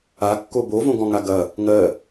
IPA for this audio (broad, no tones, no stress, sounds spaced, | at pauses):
a kː o b o v õ ɡ ɔ̃ ŋ a ɡ ɐ | ŋ ɜ